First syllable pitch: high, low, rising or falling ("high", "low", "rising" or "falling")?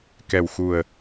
low